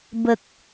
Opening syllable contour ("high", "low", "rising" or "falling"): low